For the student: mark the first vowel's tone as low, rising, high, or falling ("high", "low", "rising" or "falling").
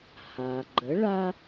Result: low